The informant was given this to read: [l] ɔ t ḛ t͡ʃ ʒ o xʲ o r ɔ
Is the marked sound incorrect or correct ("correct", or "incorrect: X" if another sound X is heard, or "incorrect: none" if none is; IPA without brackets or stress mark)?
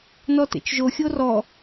incorrect: n